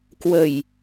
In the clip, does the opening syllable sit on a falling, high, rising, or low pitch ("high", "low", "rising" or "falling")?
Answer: low